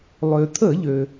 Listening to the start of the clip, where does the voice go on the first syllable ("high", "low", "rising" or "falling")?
low